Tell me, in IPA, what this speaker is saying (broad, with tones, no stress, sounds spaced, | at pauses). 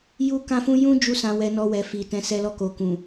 j u˧ k ã˧ f ũ˧ j ũ˦ d͡ʒ u˦ s ã˧ w ɛ˧ n ɔ˧ w ɛ˨ f i˨ t ɛ̃˨˦ s ɛ˧ l ɔ˧ k o˨ k ũ˨